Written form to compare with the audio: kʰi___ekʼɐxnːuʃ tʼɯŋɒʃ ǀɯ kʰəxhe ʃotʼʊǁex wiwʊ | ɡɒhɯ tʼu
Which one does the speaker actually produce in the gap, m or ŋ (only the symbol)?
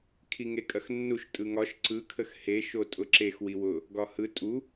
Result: ŋ